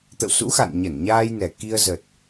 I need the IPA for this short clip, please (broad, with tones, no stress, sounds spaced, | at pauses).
t̪ ə̰˧˨ w s ṵ˧˥ x a̰˧˨ n ɲ ə˧˩ n ɲ aː˧ j n ɛ˨˩ k i˧ ə̯ z ə˨˩ t̚